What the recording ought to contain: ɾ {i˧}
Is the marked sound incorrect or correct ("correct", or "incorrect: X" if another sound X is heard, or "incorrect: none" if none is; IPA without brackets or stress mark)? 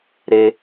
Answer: incorrect: e˧